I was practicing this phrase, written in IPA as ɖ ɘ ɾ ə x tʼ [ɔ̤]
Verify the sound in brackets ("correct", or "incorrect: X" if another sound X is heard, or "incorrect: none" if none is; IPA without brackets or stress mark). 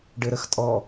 incorrect: ɔ